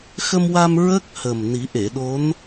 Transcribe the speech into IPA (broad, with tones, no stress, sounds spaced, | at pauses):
x ə˧ m w a˧ m ɹ ə˦˥ k̚ h ə˨˩ m n i˨˩˦ ʔ e˨˩˨ ɗ o˧˥ n